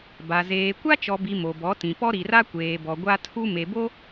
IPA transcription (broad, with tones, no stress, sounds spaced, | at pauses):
b a˨ z eː˨ kʷ a˦ t͡ʃ ɔ˨ b i˨ m o˨ b ɔ˨˦ t ĩ˨ p ɔ˦ ɾ i˨ r a˦ kʷ eː˨ b ɔ˨ ɡʷ a˦ tʰ u˦ m e˨ b o˦